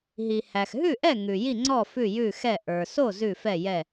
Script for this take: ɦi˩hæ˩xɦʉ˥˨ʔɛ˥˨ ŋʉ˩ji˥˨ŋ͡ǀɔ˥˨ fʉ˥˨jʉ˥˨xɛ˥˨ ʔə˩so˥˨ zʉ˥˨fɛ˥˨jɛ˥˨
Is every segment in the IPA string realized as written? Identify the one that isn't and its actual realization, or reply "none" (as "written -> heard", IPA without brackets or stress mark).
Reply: ə˩ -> ə˞˩